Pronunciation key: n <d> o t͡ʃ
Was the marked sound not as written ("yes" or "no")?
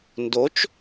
no